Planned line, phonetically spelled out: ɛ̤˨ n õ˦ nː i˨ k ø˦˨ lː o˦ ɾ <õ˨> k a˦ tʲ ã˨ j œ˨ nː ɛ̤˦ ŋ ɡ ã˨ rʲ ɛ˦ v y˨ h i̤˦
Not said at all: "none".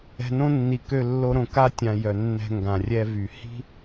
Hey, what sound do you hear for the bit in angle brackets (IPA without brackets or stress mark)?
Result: õ˨